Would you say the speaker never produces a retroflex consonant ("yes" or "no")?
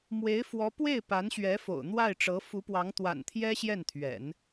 no